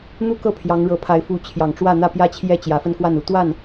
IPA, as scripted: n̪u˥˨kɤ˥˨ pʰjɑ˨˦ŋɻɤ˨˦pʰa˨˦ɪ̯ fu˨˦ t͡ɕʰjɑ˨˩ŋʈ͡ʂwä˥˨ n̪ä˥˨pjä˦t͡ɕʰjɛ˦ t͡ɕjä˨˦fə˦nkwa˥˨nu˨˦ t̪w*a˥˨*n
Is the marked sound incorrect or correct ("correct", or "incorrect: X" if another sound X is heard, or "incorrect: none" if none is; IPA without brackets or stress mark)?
correct